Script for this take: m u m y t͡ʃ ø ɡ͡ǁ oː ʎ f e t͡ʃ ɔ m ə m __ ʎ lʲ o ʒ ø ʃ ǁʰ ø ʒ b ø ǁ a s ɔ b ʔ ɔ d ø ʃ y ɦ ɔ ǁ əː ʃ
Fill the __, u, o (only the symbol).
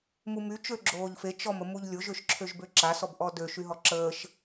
u